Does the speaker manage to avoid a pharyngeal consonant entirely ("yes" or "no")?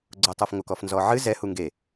no